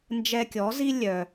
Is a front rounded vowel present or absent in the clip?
present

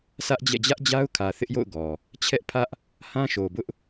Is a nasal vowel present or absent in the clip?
present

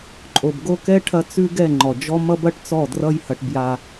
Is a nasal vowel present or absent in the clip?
absent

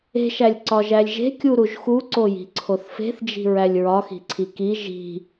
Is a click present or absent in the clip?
present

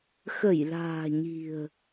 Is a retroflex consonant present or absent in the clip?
absent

